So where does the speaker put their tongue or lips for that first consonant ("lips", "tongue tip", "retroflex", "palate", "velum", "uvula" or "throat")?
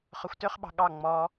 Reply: uvula